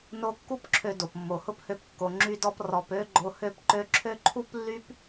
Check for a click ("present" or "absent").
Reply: present